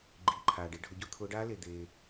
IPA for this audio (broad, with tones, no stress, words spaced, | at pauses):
ɡ͡ǃiː˩ǃʰaː˩ɖ e˨˦ɖʱʊ˨˩˦ɟʊ˦˥ t̪ʰʊː˨˦ɖaː˦˥le˩ d̪eː˩